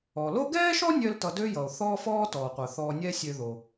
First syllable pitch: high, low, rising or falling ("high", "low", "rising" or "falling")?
low